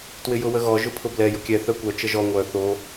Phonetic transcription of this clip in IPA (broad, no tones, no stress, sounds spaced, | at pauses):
t w ɪ j ʊ w ə ɣ ɔ ʒ ʊ pʰ ʊ b l ɛ j ʊ kʲ ɛ θ œ kʷ œ t͡ʃ ə ʒ ɔ ŋʷ œ θ o